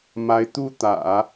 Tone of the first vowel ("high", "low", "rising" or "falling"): rising